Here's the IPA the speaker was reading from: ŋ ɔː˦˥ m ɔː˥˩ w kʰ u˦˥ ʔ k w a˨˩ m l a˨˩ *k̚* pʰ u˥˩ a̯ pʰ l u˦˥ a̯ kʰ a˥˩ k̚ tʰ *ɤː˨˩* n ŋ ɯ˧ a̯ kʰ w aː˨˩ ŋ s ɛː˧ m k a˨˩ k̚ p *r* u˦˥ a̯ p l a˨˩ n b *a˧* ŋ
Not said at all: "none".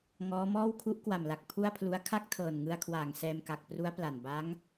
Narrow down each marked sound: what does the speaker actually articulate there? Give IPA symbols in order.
k̚, ɤː˨˩, r, a˦˥

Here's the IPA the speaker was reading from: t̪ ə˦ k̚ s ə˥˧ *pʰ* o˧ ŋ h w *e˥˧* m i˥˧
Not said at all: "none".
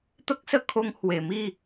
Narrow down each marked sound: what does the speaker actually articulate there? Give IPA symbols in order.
kʰ, e˨˩

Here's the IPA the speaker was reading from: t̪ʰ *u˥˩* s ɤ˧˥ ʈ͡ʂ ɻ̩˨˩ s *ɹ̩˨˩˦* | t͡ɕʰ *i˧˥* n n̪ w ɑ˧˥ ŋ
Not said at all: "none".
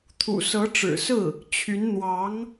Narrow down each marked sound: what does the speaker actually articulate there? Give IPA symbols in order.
ṵ˨˩, ɹ̩˥˩, y˧˥

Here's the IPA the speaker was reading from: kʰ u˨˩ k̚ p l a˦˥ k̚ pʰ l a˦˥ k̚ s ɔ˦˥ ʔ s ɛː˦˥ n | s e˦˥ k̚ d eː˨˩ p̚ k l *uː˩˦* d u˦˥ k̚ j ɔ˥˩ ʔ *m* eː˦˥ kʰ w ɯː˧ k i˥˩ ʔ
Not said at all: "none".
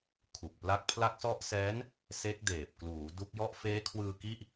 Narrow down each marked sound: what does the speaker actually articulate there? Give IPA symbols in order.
uː˩˦, f

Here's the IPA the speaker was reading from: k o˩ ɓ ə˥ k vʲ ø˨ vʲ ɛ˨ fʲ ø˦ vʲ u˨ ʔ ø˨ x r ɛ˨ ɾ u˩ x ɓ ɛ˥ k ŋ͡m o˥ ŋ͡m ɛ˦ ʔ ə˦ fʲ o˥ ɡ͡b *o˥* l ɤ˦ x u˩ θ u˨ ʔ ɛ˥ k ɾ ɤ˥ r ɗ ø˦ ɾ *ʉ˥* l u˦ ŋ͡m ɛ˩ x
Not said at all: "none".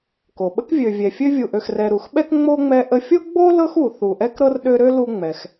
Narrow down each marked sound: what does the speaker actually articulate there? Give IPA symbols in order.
o˥, ø˥

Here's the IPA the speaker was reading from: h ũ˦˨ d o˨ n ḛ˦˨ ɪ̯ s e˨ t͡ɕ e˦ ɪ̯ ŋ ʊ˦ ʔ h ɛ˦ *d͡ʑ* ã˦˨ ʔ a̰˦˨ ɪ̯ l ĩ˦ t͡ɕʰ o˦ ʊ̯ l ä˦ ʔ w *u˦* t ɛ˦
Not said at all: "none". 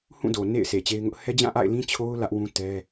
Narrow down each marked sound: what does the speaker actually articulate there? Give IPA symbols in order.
d͡ʑ, ũ˦

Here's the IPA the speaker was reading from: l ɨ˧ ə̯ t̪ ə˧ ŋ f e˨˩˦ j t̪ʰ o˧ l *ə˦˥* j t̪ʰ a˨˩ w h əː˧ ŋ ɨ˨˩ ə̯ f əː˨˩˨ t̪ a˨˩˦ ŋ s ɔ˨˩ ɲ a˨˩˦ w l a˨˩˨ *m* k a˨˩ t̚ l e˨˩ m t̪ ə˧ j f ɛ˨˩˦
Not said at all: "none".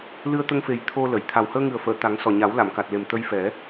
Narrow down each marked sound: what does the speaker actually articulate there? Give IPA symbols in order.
ə˨˩˨, m

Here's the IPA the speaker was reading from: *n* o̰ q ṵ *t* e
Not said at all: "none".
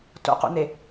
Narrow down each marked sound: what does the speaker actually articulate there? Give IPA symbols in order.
t, n̪

